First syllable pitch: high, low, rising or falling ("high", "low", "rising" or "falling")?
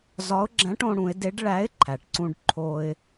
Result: rising